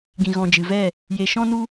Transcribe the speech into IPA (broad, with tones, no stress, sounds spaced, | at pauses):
ɡ ĩ˨ ɣ ɔ̃˨ d͡ʒ ɨ˨ v ɛ˦˨ | j e˨ ʃ ɔ̃˦ n u˦